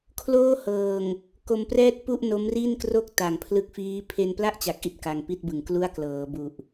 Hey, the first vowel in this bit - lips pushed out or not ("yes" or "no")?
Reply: yes